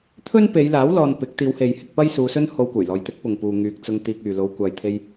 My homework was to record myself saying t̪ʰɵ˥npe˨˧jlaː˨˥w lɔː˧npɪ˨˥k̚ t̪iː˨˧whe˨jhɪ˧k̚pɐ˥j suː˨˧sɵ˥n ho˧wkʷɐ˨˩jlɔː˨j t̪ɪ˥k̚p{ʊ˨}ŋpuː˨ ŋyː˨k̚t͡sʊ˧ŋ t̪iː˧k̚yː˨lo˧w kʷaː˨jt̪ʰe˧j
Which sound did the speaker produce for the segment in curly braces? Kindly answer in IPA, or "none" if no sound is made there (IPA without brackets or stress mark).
ʊ˨